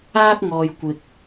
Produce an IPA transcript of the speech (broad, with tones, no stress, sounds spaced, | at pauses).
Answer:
aː˥ k̚ ŋ ɔː˨ j kʷ ɪ˨ k̚